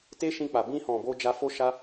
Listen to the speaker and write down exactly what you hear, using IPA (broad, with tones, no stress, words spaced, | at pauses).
te˦ʃĩ˧k͡pa˨ bĩ˧hɔ̃˨bo˧ d͡ʒa˧fo˦ʃa˦